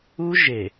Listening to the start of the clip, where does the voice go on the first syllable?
high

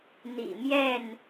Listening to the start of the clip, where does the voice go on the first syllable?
low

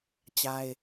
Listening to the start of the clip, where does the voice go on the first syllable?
high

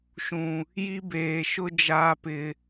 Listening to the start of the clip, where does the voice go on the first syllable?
low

